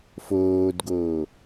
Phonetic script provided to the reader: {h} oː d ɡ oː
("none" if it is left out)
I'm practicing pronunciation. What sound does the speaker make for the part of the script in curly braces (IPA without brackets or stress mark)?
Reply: f